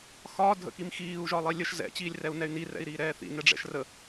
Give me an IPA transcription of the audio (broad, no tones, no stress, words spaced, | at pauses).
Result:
xɒː dʱə̰kimxiːu̯ ʒɒlˠilʲəʃ zɛ̰ t͡ɕiːlʲrɛu̯nɛy̯ni rɛ̰i̯ɾiːɾɛːθḭ nɛɖ͡ʐɛ̰ʃrə